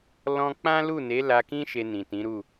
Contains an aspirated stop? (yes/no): no